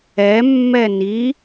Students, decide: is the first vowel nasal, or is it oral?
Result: oral